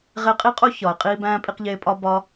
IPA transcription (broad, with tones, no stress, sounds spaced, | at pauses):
ʁ e˧ qʼ i˦ qʼ o˦ ç ɒ˨ e̯ qʼ iː˦ b æ̃ː˦ pʼ i˧ q ʎ eː˧ pʼ ɒ˦ b ɒ˦